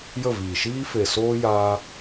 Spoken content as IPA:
j ə˦˨ v iː˨ ʃ iː˦ f e˨ s oː˦ j aː˦

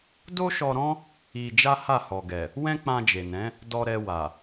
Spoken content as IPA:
d o˦ ʃ ɔ˧ ɾ ɔ̃˦ | i˧ d͡ʒ a˦ h a˦˨ h ɔ˨ ɡ ɛ˨ | w ɛ̃˦ k͡p ã˧ d͡ʒ e˨ n ɛ̃˨˦ | d ɔ˧ ɾ ɛ˧ w a˨

